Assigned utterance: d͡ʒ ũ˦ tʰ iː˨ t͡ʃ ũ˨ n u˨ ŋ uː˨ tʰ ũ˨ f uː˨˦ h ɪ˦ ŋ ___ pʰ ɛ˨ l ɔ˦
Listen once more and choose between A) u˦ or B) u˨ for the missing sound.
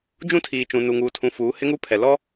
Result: A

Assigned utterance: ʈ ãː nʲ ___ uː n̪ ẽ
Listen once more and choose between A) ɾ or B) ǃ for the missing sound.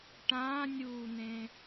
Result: A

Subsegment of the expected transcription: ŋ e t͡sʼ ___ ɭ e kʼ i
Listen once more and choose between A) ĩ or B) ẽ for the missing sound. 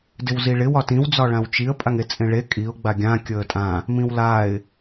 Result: B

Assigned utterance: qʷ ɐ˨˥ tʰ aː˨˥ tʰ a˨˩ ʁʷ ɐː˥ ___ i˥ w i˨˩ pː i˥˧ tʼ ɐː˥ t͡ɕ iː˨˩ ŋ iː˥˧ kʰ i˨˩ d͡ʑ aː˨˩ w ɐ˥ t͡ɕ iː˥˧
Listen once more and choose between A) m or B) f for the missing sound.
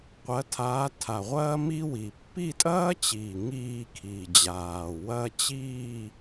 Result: A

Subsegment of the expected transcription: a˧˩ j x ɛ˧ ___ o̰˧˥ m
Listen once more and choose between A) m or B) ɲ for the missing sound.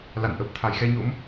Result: B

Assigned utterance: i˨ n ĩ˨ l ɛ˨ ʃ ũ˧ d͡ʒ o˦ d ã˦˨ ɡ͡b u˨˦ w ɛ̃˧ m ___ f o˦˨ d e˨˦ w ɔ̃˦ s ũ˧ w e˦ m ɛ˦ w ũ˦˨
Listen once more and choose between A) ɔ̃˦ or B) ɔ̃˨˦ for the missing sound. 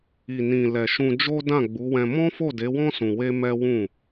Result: A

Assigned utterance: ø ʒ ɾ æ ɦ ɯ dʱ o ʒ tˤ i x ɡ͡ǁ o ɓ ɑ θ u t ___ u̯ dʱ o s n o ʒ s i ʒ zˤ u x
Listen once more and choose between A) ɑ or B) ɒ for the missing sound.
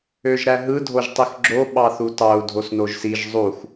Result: A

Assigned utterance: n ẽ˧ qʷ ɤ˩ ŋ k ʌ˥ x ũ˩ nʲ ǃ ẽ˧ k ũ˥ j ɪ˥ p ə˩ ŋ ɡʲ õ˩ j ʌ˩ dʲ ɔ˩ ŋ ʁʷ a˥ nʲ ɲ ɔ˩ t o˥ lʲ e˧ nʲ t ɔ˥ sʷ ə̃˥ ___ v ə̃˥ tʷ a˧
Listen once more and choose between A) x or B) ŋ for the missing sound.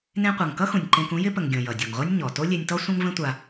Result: B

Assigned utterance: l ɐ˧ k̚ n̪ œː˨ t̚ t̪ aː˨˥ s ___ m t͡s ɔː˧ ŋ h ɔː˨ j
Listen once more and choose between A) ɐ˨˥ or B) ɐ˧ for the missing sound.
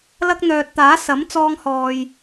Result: A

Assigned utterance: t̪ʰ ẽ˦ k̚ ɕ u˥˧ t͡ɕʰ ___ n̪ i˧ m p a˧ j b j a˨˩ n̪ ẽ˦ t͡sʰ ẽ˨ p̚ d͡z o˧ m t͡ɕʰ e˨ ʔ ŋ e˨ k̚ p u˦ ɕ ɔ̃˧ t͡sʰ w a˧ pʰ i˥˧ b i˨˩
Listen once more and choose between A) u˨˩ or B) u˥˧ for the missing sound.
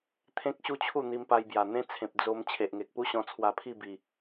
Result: B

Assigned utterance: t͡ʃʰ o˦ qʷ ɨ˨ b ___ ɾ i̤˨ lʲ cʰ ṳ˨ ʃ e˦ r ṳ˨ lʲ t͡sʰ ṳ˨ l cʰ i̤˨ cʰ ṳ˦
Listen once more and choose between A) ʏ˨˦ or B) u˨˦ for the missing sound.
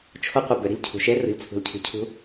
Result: A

